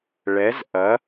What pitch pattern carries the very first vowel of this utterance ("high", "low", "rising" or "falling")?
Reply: rising